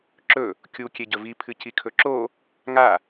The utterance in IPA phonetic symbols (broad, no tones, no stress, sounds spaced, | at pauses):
ǁ ɵ | kʲ u kʲ e ɟ ɵ v i pʰ ɨ c i kʰ ɵ ǁ o | ŋ a